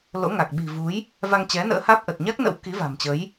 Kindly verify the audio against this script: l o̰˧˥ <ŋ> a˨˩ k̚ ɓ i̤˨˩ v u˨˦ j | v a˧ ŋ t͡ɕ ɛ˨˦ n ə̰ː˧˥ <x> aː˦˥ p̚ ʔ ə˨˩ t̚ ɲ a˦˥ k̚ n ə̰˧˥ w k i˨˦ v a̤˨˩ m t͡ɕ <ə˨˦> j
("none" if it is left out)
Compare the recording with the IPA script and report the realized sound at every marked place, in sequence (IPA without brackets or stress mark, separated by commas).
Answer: ŋ, h, ə˨˦